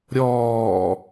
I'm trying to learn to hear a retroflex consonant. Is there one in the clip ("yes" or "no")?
no